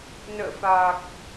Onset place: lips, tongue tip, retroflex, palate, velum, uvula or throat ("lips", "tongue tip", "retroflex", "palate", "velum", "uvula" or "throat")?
tongue tip